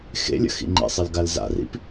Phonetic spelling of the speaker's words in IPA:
x ḛ lʲ ə̰ x ḭ ŋ͡ǃ ḭ sˤ ɘ l ɡ a l z a̰ r ḭ p

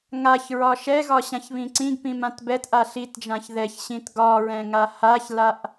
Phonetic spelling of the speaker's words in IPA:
ŋ a ç ɹ ɒ ʃ ɛ ɣ ɒ ɕ ã ç β ĩ ǀ ĩ ɡ p ĩ m ã t b ɛ t ʔ a ɬ i t d͡ʒ ã ç ð ɛ ç ɕ ĩ t ɡ ɒ ɹ ɛ̃ ŋ a h a ç l a ʔ

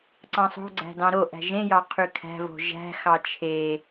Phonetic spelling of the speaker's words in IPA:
ǀ ɑ̃ sˤ o̤ ɡ͡ǀ æ̤ d ɑ̃ ɾ o ʔ æ̤ ʒ ẽ j ɑ qʰ y kʰ æ̤ v o̤ ʒ æ̤ x ɑ t͡ʃʰ e

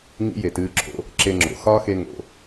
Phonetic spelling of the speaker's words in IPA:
ŋ ḭ˥ j e˩ t ɨː˧ ǁʰ o̰˧ | ǁ e˧ ŋ͡ǁ o̰˩ x ɒː˥ x e˧ ŋ o̰˩

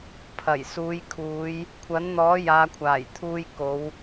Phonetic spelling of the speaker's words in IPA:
pʰ ɐ˨˩ j s uː˨˧ j kʰ uː˨˧ j | kʷʰ ɐ˨˥ n n̪ ɔː˨˥ j aː˨˧ kʷʰ aː˨˩ j t̪ʰ uː˧ j k o˨˧ w

